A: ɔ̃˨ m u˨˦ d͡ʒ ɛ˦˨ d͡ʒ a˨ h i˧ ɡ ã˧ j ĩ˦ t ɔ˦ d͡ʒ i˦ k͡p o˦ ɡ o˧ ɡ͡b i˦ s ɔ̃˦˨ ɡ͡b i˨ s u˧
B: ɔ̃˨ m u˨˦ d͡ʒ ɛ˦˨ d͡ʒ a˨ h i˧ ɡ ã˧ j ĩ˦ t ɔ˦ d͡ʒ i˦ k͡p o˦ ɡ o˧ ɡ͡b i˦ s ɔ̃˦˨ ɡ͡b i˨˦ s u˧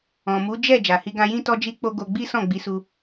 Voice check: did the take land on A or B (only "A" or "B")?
B